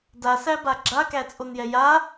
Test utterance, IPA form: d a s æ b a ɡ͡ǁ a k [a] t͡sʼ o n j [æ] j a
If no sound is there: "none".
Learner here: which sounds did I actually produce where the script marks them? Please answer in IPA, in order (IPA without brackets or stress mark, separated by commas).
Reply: æ, ɛ